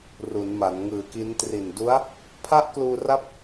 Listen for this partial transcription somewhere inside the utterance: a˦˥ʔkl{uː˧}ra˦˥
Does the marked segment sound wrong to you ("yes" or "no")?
no